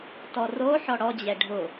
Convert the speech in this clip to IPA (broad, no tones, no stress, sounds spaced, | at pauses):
t ɔ r o ħ ɔ ɽ ɔ d͡ʑ ɛ ɖʱ ʊ